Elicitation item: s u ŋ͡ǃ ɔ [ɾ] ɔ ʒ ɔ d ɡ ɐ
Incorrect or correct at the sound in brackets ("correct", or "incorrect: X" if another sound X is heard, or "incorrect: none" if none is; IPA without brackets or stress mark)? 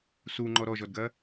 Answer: correct